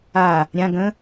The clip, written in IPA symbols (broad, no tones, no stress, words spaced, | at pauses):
a | ɾʲã ɡə̃